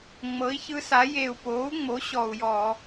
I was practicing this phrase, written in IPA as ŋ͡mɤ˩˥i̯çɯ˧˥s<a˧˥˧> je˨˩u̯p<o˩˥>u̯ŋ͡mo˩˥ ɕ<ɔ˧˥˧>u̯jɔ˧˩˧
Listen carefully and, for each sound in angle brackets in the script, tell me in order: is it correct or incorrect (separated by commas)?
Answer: incorrect, incorrect, incorrect